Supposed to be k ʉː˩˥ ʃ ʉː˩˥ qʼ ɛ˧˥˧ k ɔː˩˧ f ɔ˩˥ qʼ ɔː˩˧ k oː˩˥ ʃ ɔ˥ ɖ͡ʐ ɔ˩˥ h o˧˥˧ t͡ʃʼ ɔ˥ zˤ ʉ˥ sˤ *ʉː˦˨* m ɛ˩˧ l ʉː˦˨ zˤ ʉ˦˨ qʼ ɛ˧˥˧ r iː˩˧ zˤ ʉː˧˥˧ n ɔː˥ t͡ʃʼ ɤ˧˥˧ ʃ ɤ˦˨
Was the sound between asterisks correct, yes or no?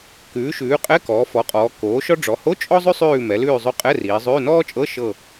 yes